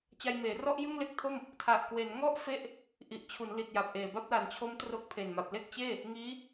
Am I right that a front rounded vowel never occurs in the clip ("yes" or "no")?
yes